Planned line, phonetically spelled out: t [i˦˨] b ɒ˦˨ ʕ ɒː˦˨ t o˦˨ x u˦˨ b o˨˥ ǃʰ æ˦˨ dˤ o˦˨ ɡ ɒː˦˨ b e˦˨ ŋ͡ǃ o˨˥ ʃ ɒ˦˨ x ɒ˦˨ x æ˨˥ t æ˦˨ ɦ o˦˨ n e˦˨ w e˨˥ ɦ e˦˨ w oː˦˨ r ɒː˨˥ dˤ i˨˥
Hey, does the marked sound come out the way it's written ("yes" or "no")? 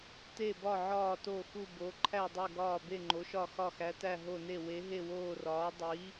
no